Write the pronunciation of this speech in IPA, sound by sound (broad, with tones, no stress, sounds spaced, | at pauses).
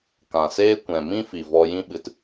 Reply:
k ã˨ s eː˦ kʷ ɛ̃˨ m ĩ˦ f i˨ v ɔ˧ j ĩ˦ ɓ ɨ˧ t